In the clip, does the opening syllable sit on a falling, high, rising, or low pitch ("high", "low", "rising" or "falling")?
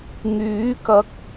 rising